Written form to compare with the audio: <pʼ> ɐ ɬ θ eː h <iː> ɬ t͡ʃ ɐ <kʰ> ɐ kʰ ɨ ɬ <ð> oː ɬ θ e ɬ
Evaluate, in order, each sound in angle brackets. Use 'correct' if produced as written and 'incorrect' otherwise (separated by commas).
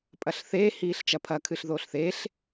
correct, correct, incorrect, correct